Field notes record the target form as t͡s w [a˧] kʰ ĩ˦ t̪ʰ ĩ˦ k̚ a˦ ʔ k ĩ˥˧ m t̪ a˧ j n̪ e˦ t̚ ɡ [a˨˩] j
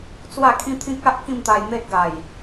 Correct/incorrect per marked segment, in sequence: incorrect: a˥˧, correct

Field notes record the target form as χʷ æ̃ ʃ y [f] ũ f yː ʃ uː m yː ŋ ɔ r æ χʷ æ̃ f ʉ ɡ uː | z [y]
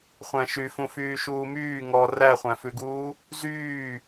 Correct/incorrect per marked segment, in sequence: correct, incorrect: yː

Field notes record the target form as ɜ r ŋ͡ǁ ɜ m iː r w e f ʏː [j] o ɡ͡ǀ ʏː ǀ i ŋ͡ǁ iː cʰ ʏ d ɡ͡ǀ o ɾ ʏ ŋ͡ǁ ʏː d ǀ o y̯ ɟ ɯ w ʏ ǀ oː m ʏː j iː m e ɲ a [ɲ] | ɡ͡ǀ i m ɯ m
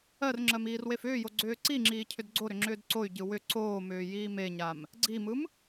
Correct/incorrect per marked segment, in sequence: correct, incorrect: m

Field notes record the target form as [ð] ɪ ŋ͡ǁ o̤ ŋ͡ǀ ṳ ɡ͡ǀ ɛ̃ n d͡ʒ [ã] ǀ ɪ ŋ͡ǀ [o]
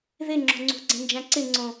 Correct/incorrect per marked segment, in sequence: correct, correct, incorrect: õ

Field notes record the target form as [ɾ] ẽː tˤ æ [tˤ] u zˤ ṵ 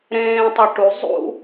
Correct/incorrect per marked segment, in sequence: correct, incorrect: ʈ

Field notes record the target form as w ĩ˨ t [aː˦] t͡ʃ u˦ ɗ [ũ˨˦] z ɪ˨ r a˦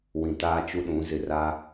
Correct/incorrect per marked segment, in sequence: correct, correct

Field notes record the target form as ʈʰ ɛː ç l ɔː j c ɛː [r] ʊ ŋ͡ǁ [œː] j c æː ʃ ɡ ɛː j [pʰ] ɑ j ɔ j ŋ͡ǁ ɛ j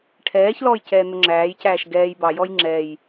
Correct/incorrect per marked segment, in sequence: incorrect: n̪, incorrect: æː, incorrect: b

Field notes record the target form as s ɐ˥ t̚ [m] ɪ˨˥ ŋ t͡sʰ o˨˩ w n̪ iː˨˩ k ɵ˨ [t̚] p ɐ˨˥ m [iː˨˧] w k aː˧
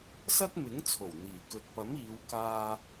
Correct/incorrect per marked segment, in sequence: correct, correct, correct

